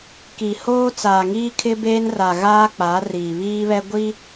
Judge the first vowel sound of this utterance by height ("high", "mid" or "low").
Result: high